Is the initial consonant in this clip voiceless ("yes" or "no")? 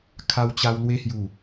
yes